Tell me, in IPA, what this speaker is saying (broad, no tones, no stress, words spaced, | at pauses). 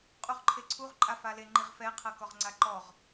qʼuʁǃʰeǀʰuʁ ǃʼafale ŋ͡ǃiʁfɛ qʰɤkɔʁŋ͡ǀaǃɔʁ